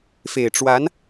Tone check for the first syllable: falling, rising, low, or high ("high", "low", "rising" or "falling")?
low